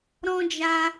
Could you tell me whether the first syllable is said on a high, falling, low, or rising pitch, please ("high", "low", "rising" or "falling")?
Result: high